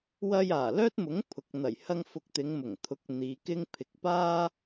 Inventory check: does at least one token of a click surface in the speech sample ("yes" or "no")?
no